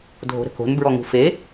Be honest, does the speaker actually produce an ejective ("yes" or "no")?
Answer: no